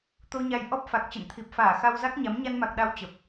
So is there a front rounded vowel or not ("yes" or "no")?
no